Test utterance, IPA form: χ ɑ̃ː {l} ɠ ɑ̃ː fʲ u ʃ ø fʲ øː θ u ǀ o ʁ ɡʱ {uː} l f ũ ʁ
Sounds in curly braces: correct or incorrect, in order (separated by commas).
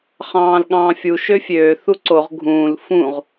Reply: correct, incorrect